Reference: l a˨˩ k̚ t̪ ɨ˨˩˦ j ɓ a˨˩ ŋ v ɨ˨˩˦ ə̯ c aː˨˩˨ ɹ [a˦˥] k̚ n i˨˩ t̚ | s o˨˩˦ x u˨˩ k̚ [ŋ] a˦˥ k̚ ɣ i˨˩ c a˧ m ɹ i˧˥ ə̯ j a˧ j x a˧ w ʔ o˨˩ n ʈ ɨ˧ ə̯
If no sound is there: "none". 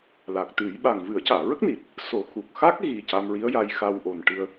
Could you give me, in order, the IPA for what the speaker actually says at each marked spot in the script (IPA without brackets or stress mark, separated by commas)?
ə˦˥, x